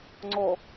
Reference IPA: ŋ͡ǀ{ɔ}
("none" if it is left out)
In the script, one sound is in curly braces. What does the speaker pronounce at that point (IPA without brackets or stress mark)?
ɔ